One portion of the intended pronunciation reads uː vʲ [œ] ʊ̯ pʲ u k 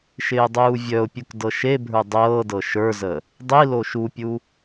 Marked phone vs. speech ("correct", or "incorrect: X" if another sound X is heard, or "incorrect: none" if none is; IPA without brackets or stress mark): correct